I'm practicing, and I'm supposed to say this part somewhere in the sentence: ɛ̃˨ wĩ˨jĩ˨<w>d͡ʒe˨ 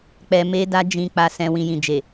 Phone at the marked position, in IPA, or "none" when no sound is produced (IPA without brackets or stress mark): none